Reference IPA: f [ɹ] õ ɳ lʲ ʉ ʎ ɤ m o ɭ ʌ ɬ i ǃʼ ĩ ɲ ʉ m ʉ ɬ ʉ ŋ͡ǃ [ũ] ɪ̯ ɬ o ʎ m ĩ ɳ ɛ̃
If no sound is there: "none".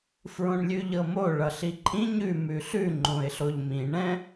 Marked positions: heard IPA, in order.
ɹ, õ

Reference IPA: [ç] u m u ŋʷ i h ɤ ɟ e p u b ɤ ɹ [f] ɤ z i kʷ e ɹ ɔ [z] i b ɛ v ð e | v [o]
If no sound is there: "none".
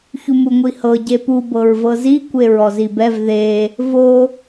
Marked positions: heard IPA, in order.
ç, v, z, o

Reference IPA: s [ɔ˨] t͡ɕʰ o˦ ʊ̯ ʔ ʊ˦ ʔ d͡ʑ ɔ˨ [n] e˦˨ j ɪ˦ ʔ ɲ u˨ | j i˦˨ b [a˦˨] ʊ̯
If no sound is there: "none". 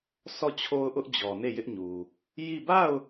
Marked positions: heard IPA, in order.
ɔ˦˨, n, a˦˨

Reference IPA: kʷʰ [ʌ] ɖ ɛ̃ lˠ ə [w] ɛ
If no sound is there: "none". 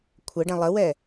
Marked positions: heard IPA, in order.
ə, w

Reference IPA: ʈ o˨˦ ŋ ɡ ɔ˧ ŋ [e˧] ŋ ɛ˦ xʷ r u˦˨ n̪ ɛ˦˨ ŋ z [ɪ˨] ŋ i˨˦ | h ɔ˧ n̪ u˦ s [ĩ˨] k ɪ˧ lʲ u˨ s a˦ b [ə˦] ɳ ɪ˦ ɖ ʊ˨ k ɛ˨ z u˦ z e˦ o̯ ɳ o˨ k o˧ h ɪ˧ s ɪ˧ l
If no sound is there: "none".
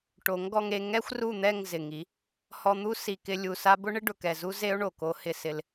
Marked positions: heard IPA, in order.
e˧, ɪ˨, i˨, ʊ˦

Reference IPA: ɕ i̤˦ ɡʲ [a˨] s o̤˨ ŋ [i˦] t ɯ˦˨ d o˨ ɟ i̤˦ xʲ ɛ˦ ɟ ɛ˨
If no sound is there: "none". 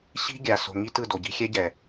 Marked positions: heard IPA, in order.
a˨, i˦

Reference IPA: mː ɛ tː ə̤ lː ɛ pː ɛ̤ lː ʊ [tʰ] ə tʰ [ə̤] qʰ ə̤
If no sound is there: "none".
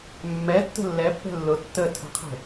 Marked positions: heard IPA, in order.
tː, ə̤

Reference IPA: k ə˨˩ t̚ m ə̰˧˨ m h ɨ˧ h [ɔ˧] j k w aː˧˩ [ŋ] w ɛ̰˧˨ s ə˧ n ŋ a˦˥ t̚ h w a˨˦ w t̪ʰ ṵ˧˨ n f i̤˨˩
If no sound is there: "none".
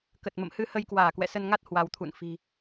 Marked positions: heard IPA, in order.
ə˧, k

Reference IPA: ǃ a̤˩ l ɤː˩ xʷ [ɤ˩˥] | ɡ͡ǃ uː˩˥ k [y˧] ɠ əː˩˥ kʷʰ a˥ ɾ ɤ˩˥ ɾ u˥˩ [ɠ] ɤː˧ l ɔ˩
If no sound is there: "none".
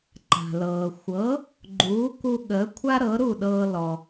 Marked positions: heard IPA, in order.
ɤ˩˥, u˧, ɗ

